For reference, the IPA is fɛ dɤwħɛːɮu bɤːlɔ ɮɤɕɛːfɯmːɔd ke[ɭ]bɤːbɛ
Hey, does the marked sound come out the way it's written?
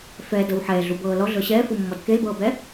no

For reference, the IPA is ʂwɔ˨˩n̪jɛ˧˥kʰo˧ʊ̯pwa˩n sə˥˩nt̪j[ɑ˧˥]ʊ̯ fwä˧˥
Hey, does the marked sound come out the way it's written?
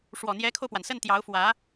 yes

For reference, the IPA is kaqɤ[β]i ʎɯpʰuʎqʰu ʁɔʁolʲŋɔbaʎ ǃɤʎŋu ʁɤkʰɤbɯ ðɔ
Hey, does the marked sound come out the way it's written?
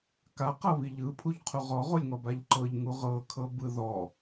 yes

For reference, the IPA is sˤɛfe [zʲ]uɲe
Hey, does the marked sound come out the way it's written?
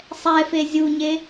yes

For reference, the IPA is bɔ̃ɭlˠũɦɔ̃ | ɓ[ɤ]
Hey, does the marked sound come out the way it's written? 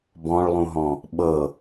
yes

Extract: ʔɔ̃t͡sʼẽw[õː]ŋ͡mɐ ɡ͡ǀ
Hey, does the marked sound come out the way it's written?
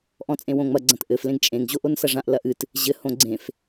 no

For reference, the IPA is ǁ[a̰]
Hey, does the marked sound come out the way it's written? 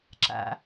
yes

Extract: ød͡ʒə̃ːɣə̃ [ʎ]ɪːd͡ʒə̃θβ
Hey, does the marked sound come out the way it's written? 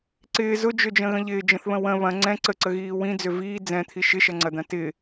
yes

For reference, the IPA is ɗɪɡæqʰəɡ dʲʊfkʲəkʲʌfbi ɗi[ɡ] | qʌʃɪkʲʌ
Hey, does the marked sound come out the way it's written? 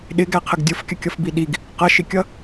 yes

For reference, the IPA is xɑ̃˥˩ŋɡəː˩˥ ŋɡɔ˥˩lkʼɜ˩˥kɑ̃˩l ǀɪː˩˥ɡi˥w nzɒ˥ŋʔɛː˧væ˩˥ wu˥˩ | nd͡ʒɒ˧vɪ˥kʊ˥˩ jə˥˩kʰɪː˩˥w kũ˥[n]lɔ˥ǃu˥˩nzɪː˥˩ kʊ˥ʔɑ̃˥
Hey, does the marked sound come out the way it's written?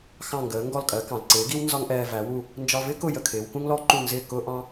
no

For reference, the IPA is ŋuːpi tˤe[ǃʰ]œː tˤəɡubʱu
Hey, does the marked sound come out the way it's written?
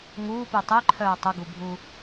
yes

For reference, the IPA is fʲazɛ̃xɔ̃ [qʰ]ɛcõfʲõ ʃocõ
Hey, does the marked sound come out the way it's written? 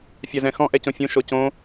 no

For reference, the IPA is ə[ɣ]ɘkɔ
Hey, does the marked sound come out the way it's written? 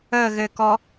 yes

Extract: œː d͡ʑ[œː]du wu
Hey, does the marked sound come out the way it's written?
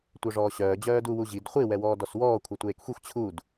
yes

